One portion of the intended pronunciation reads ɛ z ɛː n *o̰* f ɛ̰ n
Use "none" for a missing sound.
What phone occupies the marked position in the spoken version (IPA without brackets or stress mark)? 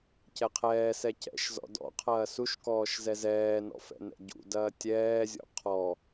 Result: ɔ̰